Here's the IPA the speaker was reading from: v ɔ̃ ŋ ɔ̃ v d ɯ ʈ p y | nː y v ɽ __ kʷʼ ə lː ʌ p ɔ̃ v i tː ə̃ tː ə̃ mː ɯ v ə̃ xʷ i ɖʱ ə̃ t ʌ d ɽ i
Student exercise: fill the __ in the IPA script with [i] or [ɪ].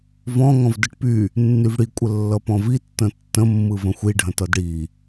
i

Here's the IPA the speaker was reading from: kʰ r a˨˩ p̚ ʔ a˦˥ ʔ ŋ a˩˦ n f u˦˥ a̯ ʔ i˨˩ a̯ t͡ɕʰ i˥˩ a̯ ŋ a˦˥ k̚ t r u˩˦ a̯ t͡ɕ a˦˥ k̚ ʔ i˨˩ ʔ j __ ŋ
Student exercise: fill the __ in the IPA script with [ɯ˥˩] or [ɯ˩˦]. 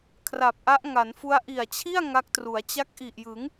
ɯ˩˦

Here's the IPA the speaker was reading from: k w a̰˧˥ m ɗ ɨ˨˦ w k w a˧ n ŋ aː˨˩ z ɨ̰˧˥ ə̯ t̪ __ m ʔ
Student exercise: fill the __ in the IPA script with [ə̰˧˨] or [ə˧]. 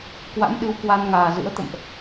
ə̰˧˨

